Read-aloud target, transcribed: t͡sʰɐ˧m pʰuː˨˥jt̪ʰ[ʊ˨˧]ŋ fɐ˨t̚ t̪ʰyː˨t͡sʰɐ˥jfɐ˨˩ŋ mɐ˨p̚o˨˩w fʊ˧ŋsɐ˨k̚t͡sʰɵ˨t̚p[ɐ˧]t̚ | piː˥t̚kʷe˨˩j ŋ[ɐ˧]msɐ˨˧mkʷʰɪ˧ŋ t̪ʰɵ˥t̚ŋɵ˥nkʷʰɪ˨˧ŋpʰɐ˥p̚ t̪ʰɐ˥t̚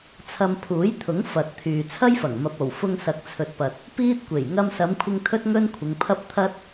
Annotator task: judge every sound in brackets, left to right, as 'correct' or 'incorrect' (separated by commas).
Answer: incorrect, incorrect, correct